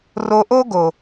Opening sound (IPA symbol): r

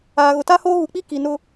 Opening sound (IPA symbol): aː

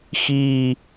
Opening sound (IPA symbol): x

